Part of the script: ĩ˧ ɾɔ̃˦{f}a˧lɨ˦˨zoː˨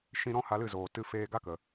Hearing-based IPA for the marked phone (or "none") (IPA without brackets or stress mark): h